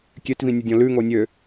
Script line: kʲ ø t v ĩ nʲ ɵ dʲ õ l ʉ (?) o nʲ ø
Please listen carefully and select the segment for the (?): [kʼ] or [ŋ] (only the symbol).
ŋ